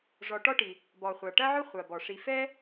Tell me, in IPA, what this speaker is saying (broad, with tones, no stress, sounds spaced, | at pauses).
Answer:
ʐ ɔ˨ ʈ ɔ˥ ʈ i˩ | b ɔ˩ χʷ a˩ ʈ ɐ˥ ʕ ʊ˥ χʷ a˩ b ɔ˩ ʂ i˨ f ɛ˥